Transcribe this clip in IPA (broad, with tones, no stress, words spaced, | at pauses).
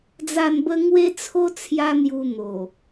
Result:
d͡za˥˧nbə˦ ŋwe˦t͡sʰo˦ t͡sʰja˦n̪ju˧ n̪o˨˩